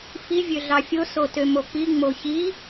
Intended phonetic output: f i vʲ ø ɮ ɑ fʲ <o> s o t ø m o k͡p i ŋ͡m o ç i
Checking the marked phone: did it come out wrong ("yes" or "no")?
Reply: no